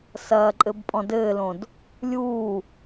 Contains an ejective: yes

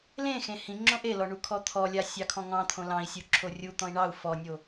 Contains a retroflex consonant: yes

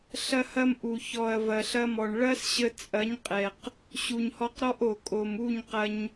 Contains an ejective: yes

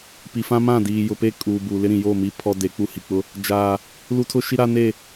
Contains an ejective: yes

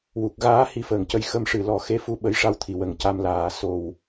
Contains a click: no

